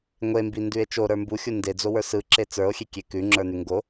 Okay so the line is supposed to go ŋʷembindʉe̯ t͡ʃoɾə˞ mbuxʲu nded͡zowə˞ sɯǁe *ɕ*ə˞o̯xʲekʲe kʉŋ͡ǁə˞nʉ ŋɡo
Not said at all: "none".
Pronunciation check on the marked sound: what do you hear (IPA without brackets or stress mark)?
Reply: t͡s